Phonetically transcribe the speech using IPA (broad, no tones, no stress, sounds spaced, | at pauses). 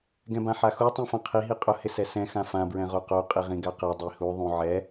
ɡ ɛ̃ b ã ħ a x u tˤ ĩ f ã qʰ i ɦ i qʼ ʊ h ɪ s ɛ s ɛ̃ x ã f ã b ɹ ɛ̃ ʁ o q o qʼ i ʁ ĩ ɡ a q ɛ dˤ i h u ðˤ ũ ʕ ɛ